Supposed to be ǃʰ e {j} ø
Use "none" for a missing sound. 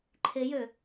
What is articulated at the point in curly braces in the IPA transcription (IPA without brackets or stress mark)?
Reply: j